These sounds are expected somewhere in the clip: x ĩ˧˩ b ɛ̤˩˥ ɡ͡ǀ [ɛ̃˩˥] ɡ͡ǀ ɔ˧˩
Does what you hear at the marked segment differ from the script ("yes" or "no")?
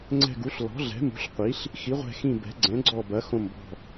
no